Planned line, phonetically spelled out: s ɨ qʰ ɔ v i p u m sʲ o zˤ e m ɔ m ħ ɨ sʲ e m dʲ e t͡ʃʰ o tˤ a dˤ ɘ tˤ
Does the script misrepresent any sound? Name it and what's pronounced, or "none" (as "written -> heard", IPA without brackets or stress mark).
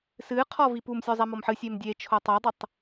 none